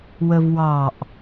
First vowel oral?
yes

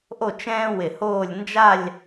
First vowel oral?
yes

